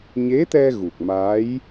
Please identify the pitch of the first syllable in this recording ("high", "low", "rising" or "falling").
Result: rising